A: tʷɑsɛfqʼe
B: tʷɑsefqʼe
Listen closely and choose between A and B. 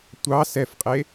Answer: A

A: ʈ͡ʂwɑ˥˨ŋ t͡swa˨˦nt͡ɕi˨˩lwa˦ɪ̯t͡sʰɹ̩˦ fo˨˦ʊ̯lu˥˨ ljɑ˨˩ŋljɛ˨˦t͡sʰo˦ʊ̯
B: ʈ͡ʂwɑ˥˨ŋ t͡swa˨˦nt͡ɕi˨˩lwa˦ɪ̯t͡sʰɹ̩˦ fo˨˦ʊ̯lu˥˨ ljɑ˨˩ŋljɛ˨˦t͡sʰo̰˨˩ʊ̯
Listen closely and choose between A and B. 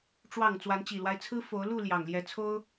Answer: A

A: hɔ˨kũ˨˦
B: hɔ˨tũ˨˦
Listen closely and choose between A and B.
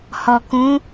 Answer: A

